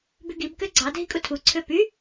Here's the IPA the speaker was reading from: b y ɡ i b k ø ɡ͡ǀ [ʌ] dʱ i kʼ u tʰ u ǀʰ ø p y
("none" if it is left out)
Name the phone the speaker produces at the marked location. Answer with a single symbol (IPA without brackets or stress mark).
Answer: ɑ